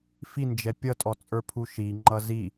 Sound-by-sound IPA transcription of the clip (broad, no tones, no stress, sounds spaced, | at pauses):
f i n d͡ʒ ɛ pʲ ʌ tʼ ɔ t͡sʼ ə˞ pʰ u ʃ i ŋ͡ǃ ʌ z i